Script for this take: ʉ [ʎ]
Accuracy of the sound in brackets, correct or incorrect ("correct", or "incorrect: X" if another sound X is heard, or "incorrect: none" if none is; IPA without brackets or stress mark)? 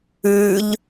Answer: correct